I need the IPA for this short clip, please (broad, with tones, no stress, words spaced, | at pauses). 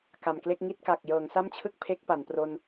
ka˨˩mkle˥˩k̚ŋi˥˩t̚ka˨˩k̚ jɤː˩˦ŋsa˥˩mt͡ɕʰɯ˥˩k̚ pʰe˦˥k̚pa˩˦npro˧n